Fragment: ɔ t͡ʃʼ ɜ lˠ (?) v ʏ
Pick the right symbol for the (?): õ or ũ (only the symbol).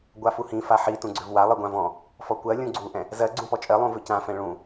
ũ